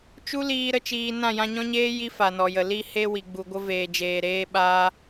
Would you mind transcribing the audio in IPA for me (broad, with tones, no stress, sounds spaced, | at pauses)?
t͡ʃ u˦ l iː˧ ɾ ə˦ t͡ʃ iː˧ n ã˦˨ j ã˧ ɲ ɔ̃˦ ɲ eː˦ j i˦ f a˨ n ɔ˨ j ə˨ l i˦ h e˦ w i˨ ɡ͡b u˨ ɡʷ ə˧ v eː˨ d͡ʒ eː˨ ɾ eː˧ ɓ aː˧